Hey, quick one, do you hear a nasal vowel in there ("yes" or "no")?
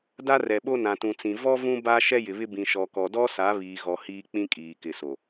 yes